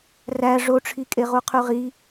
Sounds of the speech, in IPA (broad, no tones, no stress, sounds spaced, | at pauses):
r æ ʐ o ʈ͡ʂʰ i kʼ e ʁ u qʰ y ʁ i